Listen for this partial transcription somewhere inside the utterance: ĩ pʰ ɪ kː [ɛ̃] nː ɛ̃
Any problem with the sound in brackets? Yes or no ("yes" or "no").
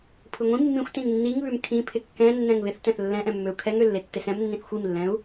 no